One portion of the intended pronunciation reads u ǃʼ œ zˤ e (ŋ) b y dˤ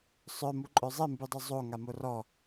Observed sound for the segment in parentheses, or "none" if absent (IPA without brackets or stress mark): m